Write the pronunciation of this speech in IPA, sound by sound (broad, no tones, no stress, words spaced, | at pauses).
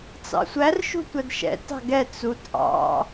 t͡sɑ̰sʷær ʃṳtʷædʃɛ̰ tɑ̤ɡɛ t͡sut ʔɑ̰